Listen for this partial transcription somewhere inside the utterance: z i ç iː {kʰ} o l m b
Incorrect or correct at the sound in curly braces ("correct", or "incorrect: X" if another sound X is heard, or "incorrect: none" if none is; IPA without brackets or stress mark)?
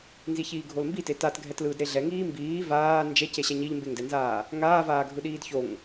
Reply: incorrect: ɡʱ